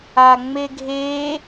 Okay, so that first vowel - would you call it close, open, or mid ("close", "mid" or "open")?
open